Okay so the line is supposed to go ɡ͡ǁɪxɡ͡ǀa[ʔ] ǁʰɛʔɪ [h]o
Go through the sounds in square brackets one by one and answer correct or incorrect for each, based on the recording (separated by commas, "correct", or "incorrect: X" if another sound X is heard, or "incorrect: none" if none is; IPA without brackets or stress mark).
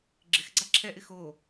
incorrect: none, incorrect: x